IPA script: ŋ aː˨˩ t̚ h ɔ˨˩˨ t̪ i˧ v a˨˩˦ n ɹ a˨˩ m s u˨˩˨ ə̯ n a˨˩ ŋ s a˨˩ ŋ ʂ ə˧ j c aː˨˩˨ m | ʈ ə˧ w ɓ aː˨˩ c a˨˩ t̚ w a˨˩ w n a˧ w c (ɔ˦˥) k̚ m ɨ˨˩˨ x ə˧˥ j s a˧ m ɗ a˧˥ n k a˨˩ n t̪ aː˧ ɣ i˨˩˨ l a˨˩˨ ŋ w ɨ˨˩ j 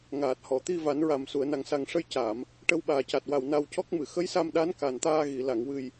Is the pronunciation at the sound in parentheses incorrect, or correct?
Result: correct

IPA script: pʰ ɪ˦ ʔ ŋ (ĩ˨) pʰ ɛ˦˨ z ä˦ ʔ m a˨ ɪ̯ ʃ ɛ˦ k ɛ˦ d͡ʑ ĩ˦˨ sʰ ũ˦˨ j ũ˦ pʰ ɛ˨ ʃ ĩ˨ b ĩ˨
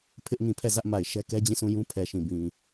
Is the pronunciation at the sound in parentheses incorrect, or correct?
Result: correct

